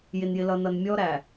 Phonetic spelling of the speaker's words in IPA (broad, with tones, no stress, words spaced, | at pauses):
jɪ˨njɪ˨lʌ˨nʌ˨n mʲɔ˦ɾæ˨